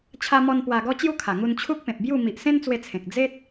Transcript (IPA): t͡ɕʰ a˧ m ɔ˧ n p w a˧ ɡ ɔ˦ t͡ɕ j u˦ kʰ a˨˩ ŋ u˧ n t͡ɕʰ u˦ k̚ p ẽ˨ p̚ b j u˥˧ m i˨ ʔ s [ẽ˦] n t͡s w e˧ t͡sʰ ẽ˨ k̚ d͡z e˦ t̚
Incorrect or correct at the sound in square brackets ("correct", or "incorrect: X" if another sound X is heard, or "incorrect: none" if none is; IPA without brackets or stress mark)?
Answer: correct